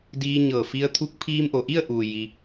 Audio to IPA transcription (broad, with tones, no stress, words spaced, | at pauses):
diː˧ ɲɤː˧˩ fi˧ə̯t̪ʰu˧˥k̚ pʰiː˧mʔo˩ʔi˥˨ə̯ʔuː˩ ji˧